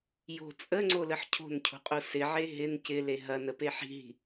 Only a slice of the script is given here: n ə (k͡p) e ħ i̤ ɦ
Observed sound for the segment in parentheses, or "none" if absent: p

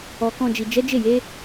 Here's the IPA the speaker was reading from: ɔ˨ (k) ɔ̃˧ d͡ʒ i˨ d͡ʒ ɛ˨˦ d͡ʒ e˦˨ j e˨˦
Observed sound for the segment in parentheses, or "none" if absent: k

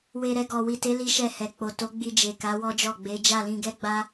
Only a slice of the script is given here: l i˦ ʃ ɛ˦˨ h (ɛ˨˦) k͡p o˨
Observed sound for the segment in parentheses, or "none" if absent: ɛ˨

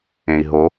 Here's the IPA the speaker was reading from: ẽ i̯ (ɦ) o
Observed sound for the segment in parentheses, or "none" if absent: ɦ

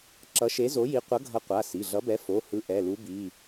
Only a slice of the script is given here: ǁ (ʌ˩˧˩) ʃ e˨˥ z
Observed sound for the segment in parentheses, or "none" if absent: ʌ˨˥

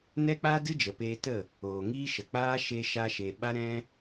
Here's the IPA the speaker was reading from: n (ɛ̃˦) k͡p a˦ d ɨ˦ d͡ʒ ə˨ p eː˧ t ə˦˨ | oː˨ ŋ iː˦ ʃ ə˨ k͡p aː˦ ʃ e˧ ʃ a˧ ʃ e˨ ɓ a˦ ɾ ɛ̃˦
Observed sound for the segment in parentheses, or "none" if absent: ɛ˦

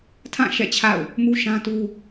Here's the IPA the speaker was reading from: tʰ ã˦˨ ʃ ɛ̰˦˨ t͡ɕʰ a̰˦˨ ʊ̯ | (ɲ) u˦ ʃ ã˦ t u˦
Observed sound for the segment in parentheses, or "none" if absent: m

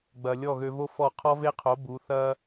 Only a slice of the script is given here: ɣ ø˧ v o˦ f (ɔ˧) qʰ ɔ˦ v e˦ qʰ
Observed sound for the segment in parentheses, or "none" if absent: ɔ˦˨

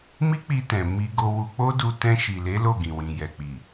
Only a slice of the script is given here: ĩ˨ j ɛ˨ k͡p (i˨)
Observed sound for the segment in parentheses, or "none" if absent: i˨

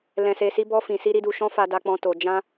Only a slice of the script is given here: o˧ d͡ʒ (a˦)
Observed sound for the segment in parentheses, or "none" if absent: ã˦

